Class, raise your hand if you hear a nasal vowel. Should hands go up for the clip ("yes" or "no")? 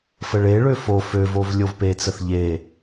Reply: no